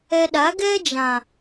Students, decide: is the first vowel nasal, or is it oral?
oral